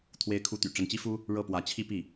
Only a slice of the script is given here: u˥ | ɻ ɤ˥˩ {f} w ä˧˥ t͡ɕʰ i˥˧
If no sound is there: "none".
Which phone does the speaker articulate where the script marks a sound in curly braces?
p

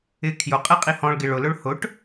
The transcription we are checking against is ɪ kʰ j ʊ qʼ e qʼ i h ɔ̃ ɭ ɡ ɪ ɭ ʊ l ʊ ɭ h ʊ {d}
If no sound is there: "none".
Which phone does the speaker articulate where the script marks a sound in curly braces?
ʈ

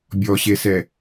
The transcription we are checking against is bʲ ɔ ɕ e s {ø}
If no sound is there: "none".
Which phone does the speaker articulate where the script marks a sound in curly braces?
ɛ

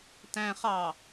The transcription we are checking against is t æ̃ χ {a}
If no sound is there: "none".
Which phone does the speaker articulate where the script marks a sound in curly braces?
ɑ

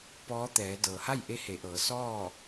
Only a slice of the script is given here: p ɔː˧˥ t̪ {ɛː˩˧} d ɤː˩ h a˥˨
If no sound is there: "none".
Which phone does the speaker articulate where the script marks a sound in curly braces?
ɛː˩˧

